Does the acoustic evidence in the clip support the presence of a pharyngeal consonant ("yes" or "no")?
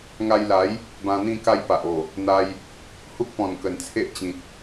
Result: no